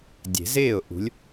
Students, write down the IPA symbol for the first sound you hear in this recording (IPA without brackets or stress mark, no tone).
dʲ